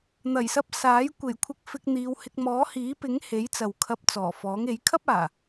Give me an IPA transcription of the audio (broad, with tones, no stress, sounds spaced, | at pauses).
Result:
n̪ ɐ˨˩ j s ɐ˧ p̚ s aː˨˥ j kʷ e˨˩ j kʷʰ ɪ˧ k̚ f ɪ˧ k̚ n̪ iː˨˧ w h ɪ˧ k̚ m ɔː˨˥ h iː˨˥ p ɪ˨˥ ŋ h e˨˥ j t͡s ɐ˨ w kʰ ɐ˧ p̚ t͡s ɔː˨˩ f ɔː˨˥ ŋ e˨˥ j kʰ ɐ˥ p̚ aː˨˩